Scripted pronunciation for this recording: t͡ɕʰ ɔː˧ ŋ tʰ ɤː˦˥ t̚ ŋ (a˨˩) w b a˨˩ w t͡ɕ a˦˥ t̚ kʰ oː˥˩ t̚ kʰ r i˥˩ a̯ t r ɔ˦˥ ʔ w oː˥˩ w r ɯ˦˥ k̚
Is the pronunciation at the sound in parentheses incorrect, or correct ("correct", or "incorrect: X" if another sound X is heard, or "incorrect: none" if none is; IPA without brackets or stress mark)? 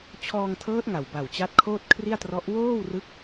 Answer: correct